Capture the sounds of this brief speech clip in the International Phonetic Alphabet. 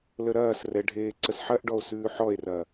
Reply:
l ə ɾ ɐː s r ɛ ɖʱ eː ǀ ə s ħ ɐ ʔ ɖ ɔ o̯ s ʉː ħ ɔ e̯ r ɐ

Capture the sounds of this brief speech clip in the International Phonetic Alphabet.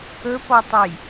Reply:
ɵ p ɔ tˤ ə j

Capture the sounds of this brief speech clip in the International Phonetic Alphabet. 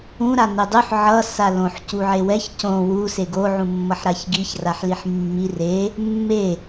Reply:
ũ ɾ a n e dˤ u ħ ʕ ʌ s a l õ ħ c u ʕ e w ɛ ç c õ w u s e ɡ o ʕ ũ mː ʌ ħ ɾ a ç ɡ i ç r a ħ l i ħ mː i r e | mː e

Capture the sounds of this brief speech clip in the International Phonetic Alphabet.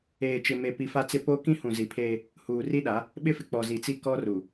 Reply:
eː˨ t͡ʃ ɪ˨ m e˨ p i˨ f a˦ t͡s ɪ˦ p o˦ k ĩ˦ h ũ˨ z i˨ pʰ eː˦ | h uː˨ r i˦ ɗ a˨˦ | ɓ ɪ˦ f ɪ˨ k͡p ɔ˨ z i˨ t͡s i˦ k ɔ˦ r u˨

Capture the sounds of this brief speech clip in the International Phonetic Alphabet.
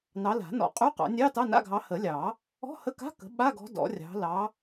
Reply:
n ɑ˨˦ l a̤˨˩˦ n ɔ̰˨˩˦ qʼ ʉ˧˥˧ q ɑ̰˨˩˦ nʲ ɑ˧˥˧ t ɑ˧˥˧ n a̰˧˥˧ ɡʱ ɑ˨˦ h ə˨˩˦ lʲ ɑ˨˩˦ | ɔ̤˧˥˧ h ə˧˥˧ k a̤˧˥˧ k ə̤˨˦ ɓ a˧˥˧ ɡ ɔ̤˨˦ d ɔ̰˨˩˦ rʲ ɑ̤˨˦ l ɑ˨˦

